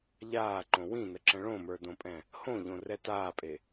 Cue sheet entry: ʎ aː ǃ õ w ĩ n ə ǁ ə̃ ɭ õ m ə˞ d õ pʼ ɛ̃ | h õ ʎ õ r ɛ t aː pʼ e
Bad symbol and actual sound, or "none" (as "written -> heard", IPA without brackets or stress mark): none